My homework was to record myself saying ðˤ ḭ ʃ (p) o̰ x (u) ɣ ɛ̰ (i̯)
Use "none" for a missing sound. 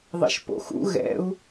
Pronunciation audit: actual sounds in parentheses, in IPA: p, ṵ, u̯

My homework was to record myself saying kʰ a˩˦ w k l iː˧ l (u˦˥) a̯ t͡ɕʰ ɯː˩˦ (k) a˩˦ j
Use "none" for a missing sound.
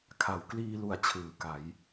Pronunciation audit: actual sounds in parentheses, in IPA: u˨˩, k

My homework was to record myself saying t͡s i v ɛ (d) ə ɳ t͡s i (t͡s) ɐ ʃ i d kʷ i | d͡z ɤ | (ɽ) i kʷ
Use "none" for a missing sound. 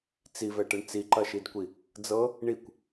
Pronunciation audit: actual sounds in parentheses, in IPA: ʈ, ǃ, ɳ

